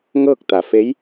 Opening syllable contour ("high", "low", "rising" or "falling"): falling